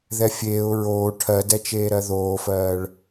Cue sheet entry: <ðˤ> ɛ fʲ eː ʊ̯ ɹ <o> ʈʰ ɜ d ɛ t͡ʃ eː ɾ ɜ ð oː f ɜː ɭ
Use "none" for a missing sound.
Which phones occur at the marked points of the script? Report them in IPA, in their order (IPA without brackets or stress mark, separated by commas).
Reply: ð, oː